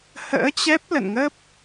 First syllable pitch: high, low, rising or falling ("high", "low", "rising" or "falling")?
rising